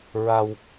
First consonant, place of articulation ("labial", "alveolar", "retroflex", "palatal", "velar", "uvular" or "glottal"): alveolar